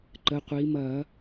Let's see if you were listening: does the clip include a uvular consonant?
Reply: yes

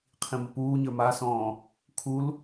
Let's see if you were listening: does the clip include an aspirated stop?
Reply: yes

